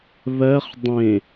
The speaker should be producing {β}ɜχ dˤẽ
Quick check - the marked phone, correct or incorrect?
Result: correct